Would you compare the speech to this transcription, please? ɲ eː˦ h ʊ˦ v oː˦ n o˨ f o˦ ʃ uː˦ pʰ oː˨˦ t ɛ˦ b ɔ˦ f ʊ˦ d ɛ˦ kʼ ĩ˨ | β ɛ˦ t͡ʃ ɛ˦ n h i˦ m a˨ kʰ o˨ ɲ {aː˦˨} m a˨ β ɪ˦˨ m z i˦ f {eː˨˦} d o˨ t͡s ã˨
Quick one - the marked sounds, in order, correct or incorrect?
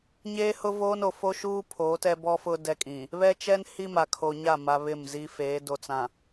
incorrect, correct

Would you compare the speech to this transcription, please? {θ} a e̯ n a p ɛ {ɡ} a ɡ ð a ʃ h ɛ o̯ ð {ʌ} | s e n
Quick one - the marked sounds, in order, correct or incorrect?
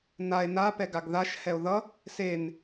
incorrect, correct, correct

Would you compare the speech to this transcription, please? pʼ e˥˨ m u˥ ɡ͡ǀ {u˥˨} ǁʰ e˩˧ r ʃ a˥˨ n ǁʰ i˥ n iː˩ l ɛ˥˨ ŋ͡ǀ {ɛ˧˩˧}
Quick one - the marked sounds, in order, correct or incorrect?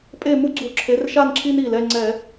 incorrect, correct

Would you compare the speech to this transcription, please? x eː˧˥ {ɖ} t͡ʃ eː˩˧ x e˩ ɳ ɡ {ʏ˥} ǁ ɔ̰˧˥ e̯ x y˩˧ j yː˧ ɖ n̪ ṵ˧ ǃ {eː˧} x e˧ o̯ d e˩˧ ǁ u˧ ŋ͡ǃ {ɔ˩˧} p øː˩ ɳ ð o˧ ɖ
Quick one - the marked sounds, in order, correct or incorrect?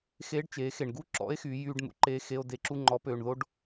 correct, incorrect, correct, correct

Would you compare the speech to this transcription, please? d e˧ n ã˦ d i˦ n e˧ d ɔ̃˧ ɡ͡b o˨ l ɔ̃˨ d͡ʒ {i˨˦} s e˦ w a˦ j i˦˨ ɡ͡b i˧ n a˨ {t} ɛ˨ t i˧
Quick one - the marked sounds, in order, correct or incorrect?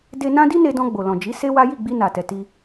correct, correct

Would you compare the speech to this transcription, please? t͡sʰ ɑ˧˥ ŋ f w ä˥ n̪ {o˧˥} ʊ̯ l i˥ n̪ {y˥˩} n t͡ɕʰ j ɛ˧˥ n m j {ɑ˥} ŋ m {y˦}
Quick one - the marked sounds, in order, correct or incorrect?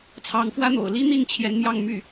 incorrect, incorrect, incorrect, incorrect

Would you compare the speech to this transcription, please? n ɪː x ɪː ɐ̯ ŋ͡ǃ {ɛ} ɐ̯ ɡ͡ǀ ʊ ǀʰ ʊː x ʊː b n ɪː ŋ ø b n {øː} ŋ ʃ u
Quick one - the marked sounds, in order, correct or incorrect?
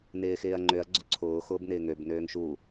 incorrect, correct

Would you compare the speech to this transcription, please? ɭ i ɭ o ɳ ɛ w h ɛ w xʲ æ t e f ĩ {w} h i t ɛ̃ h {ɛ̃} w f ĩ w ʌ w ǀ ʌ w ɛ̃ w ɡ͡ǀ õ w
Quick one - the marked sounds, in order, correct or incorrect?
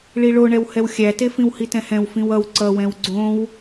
correct, correct

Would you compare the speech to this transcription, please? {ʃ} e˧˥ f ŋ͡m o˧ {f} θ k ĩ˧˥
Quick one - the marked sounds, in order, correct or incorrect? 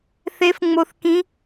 incorrect, incorrect

